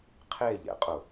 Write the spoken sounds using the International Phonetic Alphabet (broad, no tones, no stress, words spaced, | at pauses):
qʰeʎɛ̰qʼʊ